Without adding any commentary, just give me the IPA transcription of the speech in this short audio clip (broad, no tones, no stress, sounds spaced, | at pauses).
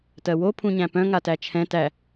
t ɜ w o pʰ ũ ɲ æ̃ p œ̃ ŋ a t æ t͡ʃʰ ɛ̃ t æ